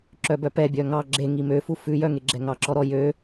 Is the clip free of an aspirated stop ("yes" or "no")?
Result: yes